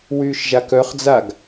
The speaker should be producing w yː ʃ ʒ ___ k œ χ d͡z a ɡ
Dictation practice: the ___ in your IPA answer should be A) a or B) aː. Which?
A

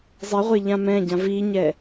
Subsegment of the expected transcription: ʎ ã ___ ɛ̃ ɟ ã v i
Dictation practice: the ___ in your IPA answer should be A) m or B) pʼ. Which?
A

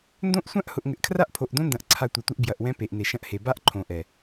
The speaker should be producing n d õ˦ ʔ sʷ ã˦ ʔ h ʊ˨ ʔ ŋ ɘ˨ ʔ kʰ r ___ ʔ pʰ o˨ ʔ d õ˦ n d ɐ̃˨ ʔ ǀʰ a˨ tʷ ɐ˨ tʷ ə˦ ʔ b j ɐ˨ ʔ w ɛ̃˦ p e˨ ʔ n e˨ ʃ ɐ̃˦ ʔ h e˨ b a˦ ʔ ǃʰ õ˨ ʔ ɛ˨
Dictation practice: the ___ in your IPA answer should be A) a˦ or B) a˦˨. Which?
A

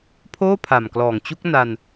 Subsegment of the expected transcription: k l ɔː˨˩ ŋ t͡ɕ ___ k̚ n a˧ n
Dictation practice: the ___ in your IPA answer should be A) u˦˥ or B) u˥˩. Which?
A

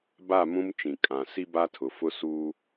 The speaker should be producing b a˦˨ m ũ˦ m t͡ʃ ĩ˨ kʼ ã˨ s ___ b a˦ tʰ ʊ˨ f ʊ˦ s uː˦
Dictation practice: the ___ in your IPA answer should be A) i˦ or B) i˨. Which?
A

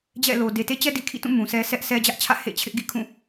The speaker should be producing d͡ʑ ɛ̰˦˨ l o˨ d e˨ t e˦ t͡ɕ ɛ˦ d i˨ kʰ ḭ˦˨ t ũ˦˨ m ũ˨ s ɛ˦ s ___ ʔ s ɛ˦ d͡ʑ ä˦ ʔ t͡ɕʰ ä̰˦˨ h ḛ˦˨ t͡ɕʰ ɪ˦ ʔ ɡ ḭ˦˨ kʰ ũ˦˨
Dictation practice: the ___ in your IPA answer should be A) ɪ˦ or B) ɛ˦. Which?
B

